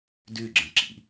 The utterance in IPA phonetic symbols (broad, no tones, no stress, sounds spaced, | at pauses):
d ʉ ɡ͡ǁ ə̃ ǁ ḭ